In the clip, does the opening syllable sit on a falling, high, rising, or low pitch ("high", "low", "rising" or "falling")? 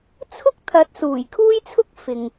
high